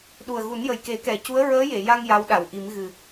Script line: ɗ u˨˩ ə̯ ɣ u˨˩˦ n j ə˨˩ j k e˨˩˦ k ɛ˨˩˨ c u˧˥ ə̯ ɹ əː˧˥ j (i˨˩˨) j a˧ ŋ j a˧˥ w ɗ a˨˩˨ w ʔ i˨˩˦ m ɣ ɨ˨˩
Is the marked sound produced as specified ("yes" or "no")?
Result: no